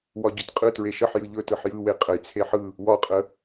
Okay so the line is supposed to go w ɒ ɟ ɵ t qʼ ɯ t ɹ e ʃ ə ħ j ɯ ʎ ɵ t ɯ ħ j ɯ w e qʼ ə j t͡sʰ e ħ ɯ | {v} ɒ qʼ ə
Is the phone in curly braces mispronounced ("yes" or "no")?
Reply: yes